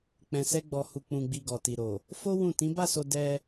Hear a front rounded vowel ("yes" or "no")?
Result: no